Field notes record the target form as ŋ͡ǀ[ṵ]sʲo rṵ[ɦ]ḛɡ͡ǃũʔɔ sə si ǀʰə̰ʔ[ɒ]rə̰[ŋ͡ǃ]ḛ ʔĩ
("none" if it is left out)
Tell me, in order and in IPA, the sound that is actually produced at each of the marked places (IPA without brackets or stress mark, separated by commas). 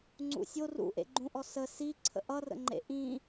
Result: ṵ, ʔ, ʌ, ŋ͡ǃ